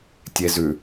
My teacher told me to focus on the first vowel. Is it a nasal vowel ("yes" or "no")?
no